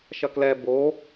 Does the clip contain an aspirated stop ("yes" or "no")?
no